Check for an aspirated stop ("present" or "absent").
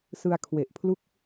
present